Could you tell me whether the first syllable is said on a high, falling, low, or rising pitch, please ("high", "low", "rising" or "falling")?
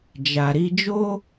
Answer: low